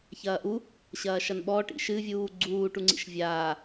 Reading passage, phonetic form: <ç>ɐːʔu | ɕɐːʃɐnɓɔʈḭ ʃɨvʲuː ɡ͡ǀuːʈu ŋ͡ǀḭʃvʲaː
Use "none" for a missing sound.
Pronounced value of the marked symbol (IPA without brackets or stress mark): ç